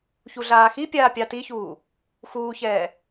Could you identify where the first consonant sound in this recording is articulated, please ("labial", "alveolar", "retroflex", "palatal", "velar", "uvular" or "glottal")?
palatal